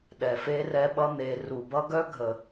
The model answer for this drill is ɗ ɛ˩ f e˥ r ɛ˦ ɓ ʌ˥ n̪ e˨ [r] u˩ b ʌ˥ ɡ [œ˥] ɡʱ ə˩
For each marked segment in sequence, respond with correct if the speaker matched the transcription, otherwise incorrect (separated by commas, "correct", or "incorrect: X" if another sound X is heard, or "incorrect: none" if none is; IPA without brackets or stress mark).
correct, correct